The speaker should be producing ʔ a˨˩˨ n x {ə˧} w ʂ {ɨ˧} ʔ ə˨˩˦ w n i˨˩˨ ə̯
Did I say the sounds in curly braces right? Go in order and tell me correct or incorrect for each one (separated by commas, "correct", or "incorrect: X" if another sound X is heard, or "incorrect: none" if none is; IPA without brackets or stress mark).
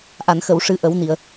incorrect: ə˨˩˨, incorrect: ɨ˨˩˦